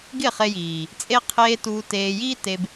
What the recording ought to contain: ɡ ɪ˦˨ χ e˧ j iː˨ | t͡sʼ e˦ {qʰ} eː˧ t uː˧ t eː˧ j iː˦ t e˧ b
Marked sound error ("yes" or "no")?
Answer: no